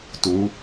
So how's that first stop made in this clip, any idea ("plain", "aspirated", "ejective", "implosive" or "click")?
plain